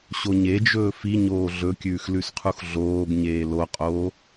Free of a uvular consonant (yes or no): no